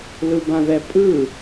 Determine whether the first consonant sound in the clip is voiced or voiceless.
voiced